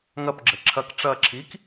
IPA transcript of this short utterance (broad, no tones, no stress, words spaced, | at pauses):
ŋɐpɡ͡ǁɘ ǁʰɐk ʈ͡ʂɐ ǁʰik